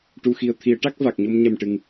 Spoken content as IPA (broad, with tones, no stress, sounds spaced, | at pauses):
ʈ u˨˩ x i˨˩ ə̯ t̪ʰ i˨˩˦ ə̯ ʈ a˦˥ k̚ v a˨˩ k̚ ɲ o˧ m ɲ ɛ˨˩ m ʈ ɨ˨˩ ŋ